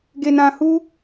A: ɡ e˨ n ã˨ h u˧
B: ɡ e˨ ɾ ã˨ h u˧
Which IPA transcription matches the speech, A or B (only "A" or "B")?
A